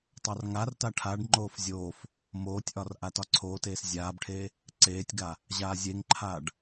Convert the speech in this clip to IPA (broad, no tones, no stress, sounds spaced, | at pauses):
tˤ a r ŋ a r t a ʈʰ a ɖ ŋ͡ǃ oː f zʲ oː f | m oː tʲ ʔ ɒ r ʔ a t ɒ ǀʰ oː t eː s zʲ aː b ʈʰ eː | ǀ eː tʲ ɡ a | ʑ aː zʲ e ŋ ǃʰ aː ɖ